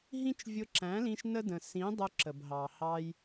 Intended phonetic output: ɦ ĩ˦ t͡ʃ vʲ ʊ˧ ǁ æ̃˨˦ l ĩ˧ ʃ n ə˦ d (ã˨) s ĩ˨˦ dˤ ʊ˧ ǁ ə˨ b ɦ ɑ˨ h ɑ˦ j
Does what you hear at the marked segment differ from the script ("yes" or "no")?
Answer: yes